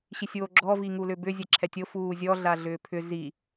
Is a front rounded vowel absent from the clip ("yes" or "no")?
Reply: no